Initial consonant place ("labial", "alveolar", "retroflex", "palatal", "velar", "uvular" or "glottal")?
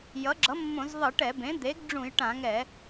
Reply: palatal